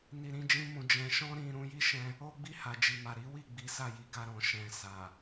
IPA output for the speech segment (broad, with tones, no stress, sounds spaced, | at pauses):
n i˧ ɾ ĩ˦ d͡ʒ ĩ˦ m ũ˧ d͡ʒ ɛ̃˧ ʃ ɔ̃˦ ɾ ĩ˧ ɾ ũ˧ j i˦ ʃ ɛ̃˧ | o˦ ɡ͡b i˦˨ h a˨ d͡ʒ i˨ m a˨ ɾ i˨˦ w i˦˨ ɡ͡b i˨˦ s a˦˨ j i˨ ɡ a˧ ɾ ɔ̃˨ ʃ ɛ̃˨ s a˨